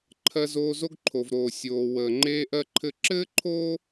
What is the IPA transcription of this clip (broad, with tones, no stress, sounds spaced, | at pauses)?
ǃʰ ɜ˧ z oː˧ z o˦ ɡ ǃʰ o˨ v ɾ oː˨ sʲ oː˨ w əː˨ ŋ͡ǃ eː˧ ʔ ɜ˧ ǃʰ ɘ˧ ǁ ɘː˦ ǃʰ oː˦